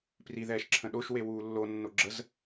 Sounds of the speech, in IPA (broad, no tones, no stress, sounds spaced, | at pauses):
p r i ð ɛː ʃ ǁʰ ə̃ ɗ o ʃ w e w uː lː o nː o ɡ͡ǁ ə z